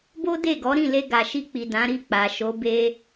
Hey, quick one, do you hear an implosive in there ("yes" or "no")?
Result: no